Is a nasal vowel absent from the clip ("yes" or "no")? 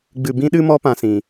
no